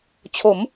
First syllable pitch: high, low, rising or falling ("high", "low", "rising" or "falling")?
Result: rising